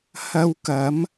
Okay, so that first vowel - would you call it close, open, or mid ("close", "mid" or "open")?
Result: open